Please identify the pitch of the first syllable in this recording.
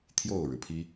falling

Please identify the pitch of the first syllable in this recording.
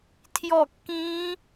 falling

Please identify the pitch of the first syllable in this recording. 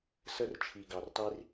high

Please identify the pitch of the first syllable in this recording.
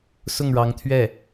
falling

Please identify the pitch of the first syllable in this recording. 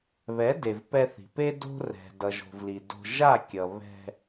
rising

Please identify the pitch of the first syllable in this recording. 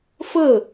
falling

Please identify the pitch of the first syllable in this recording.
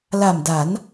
low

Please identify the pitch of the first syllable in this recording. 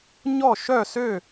falling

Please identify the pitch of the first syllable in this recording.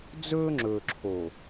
high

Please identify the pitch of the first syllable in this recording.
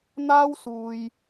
high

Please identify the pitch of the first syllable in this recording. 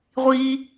high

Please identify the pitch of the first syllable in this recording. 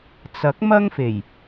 rising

